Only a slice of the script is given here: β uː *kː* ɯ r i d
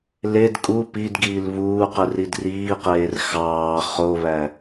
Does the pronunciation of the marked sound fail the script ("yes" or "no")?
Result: yes